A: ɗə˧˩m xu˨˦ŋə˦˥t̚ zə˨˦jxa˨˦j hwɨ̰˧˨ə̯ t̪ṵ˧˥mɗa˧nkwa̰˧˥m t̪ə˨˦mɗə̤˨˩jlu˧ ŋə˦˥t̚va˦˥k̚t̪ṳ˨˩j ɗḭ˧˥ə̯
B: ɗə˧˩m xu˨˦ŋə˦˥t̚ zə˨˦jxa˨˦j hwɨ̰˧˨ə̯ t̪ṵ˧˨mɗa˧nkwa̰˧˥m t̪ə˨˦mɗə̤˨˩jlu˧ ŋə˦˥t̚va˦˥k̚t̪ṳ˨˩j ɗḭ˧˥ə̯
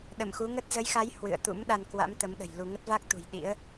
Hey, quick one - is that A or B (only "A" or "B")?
A